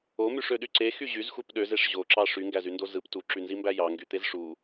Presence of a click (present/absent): present